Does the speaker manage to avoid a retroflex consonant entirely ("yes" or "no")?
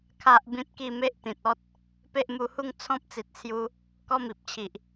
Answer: yes